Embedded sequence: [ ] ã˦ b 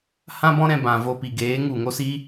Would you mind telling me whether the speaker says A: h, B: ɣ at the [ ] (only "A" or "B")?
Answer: A